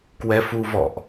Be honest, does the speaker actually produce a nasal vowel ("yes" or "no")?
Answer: no